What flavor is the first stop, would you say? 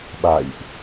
implosive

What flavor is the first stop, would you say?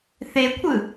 aspirated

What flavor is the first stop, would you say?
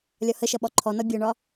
implosive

